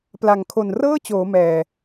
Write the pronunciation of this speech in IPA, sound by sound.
p l a˨˩ ŋ kʰ o˨˩ n r ɤː˥˩ t͡ɕ oː˩˦ m ɛː˨˩

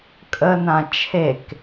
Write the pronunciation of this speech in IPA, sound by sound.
kʼ ə n ã t͡ʃʰ e k

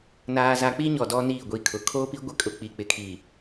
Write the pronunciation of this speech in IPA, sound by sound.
n aː˨ z a˨ k͡p i˦ ɲ ɔ˨ d ɔ˦ n iː˦˨ ɡʷ i˦˨ kʰ ʊ˨ kʰ o˦ p i˦ ɡʷ ɪ˦ kʼ ʊ˨ k͡p i˨ k͡p ɪ˨ kʰ i˨

